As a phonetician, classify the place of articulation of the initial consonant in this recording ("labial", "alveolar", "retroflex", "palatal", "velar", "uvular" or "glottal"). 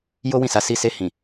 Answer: palatal